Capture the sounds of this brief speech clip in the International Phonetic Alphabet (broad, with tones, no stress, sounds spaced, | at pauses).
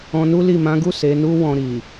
ɔ̃˧ n u˦ l i˦˨ m ã˨˦ ɡ u˦˨ s e˨˦ n u˦ w ɔ̃˧ ɾ i˨